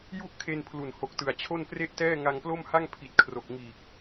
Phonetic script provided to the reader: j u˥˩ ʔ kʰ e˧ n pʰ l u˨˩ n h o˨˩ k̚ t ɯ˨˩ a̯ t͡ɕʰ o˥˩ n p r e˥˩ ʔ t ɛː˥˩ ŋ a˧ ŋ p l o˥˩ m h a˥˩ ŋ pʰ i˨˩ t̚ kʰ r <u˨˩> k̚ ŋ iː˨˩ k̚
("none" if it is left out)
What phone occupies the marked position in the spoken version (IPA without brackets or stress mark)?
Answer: o˨˩